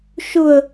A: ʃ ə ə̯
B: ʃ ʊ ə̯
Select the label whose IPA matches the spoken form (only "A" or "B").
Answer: B